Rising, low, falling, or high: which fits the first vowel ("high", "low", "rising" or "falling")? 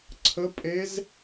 rising